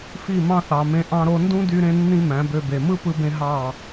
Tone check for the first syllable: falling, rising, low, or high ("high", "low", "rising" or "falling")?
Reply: falling